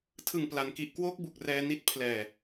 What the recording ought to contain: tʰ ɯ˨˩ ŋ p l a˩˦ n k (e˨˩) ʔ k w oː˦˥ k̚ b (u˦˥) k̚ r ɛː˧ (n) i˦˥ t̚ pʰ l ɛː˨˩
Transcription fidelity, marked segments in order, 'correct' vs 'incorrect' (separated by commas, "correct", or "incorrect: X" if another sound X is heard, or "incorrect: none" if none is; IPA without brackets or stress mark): incorrect: i˨˩, incorrect: u˨˩, correct